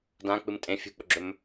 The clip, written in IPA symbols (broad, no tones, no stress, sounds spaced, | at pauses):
d ã k͡p ɨ m tʼ ẽ fʲ ṳ k͡p ɵ ɡ͡ǁ ɵ m